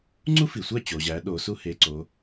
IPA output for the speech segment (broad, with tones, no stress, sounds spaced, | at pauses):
ŋ͡ǀ u˥ f i˩ sʷ æ˥˩ t͡ɕ o˩ ʑ æ˩˧ ɗ o˩˧ s u˥ h e˩˧˩ ǀ o˩˧